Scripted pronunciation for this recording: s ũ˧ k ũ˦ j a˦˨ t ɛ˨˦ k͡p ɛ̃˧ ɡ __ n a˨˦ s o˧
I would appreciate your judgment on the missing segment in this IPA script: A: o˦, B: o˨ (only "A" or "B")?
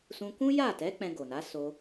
B